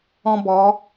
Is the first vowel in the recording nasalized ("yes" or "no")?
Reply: yes